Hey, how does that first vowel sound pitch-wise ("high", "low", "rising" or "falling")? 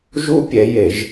high